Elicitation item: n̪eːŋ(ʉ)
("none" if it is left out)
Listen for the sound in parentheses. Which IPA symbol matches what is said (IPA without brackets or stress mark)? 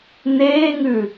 ʉ